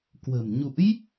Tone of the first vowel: low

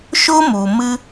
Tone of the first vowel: high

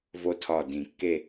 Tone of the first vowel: high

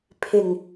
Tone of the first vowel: low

